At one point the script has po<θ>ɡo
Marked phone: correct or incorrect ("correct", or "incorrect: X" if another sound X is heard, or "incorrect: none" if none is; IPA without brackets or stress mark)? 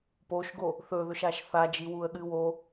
incorrect: ʃ